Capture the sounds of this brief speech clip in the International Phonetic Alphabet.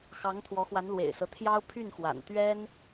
x ɑ˧˥ ŋ t̪ʰ w ɔ˧˥ x w a˧˥ n l w ḛ˨˩ ɪ̯ s ɤ˦ t̪ʰ j ɑ˥ ʊ̯ pʰ y˥˩ n x w a̰˨˩ n t̪ ɥ ɛ˥ n

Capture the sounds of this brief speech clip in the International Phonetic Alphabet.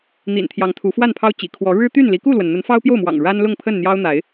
n̪ ḭ˨˩ n t̪ʰ j ɑ˨˦ ŋ t̪ʰ u˨˦ f w a˥˨ n pʰ ɑ˦ ʊ̯ t͡ɕ ḭ˨˩ kʰ w ɔ˨˦ ɻ ɻ̩˦ t̪ y˥˨ n l i˨˦ k u˥˨ l w ə˩ n n̪ ə˨˦ n f ɑ˦ ʊ̯ p j o˥˨ ʊ̯ m w ɑ̰˨˩ ŋ ɻ a˦ n l ʊ˥˨ ŋ pʰ ə˥˨ n n̪ j ɑ˦ ʊ̯ n̪ a˨˦ ɪ̯

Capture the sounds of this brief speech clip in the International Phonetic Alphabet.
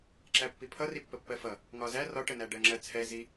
ǁ æ pː i pʰ ʌ r i pː ə pː ɜ f ʌ | ŋ ɒ z æ r ɒ ʈ ə n æ ɖ ɜ ŋ͡ǁ ɜ t͡sʰ ɛ z i

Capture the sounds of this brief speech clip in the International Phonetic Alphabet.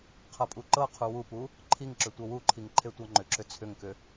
qʰ ɤ pʼ u ǃ ɤ qʰ u w u p u | ǃʰ i ŋ ǁ ʏ tʷ ɤ w u ǃʰ i ŋ ǃʰ e tʷ ɤ ŋ͡ǃ ʏ ǁ ʏ t͡sʰ ʏ ŋ k ʏ

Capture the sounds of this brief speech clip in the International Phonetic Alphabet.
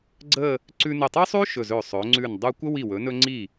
ɡ͡ǀ ə˥˧ | ǀ ʉ˧ n ə˧˩ tˤ ɵ˥ sˤ ʉ˥ ʃ ɵ˧˩ z ɵ˧˩ sˤ ɵ˩˧ ŋ͡ǀ ʉ˧˩ n dˤ u˧ kʷ ə˥ w i˧˩ w ɵ˩˧ n ɵ˧ ŋ͡ǀ i˧˩

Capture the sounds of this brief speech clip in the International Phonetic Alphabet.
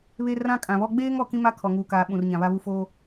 β e˦ r ã˦ kʼ ã˨ β ɔ˦ ɡ͡b eː˦ ŋ ɔ˨ k ĩ˦ m a˦ kʰ ɔ˨ ŋ uː˨ k aː˨ ɓ ũ˨ r ɲ ã˨ β a˦ β u˦ f oː˦

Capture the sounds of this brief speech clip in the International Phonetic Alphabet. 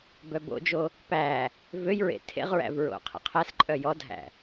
b œ b o̰ d͡ʒ o | p æ | v ø j ɹ ḛ tʰ ḛ ʁ ɹ æ̰ v ɹ o̰ qʰ ḛ qʰ æ s ǃʼ œ j ɔ dʱ æ̰

